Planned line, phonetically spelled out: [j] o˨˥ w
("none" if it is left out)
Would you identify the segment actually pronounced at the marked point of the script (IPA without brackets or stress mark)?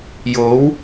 j